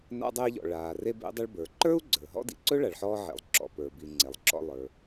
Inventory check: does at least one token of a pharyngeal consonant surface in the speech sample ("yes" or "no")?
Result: yes